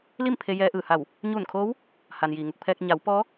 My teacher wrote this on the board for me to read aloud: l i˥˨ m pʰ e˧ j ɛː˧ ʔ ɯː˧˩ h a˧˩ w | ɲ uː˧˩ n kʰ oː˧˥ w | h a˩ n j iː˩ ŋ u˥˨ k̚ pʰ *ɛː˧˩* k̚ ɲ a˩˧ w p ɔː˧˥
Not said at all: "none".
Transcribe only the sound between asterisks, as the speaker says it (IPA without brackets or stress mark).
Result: ɛː˧